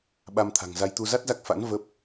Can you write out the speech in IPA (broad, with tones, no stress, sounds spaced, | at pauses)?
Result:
ɓ a˧ m t̪ʰ a̤˨˩ ŋ z a˧ j t̪ u˧ z a˦˥ t̚ z a˦˥ k̚ f a̰˧˥ n v ə˦˥ p̚